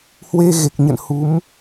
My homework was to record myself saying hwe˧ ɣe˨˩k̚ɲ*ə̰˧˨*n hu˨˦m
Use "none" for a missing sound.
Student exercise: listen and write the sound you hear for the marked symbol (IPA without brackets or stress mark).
ə̰˧˨